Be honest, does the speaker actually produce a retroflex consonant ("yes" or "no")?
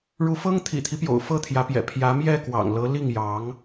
yes